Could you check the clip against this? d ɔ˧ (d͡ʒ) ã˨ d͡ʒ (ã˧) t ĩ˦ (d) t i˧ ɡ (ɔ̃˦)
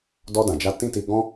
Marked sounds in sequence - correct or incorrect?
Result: incorrect: d, incorrect: a˧, incorrect: none, correct

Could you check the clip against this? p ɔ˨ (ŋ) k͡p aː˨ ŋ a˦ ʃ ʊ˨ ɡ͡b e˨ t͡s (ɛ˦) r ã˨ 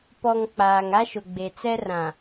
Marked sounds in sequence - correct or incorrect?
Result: correct, correct

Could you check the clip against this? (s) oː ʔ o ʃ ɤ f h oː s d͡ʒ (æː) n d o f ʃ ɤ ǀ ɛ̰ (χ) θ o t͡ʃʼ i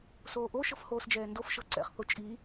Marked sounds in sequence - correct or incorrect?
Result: correct, incorrect: ɛː, correct

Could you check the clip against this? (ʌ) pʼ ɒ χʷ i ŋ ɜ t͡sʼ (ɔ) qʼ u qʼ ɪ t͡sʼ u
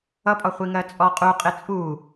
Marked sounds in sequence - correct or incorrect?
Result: correct, correct

